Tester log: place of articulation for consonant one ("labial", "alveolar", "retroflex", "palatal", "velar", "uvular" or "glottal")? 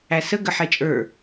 alveolar